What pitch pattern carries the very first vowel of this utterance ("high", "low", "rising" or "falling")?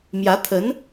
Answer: rising